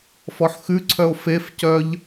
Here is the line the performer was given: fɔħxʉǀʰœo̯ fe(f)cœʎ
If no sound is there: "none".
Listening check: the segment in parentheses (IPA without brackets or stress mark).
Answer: f